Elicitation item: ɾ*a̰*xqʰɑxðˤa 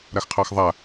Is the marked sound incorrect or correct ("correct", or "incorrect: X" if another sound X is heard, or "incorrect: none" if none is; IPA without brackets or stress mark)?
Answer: incorrect: a